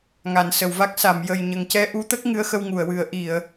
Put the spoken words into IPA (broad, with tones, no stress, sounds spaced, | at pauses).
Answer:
ŋ a˨˩˨ n s ə˨˩˨ w v a˦˥ k̚ s a˨˩˨ m j ə˨˩ j ɲ ə˨˩ ŋ c ɛ˧ ʔ u˧˥ t̪ ə˦˥ k̚ ŋ ɨ˧˥ ə̯ x ə˧ w ŋ u˨˩˨ ə̯ w ɨ˨˩˦ ə̯ ʔ i˨˩˨ ə̯